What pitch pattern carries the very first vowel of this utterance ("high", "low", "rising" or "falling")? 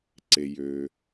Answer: low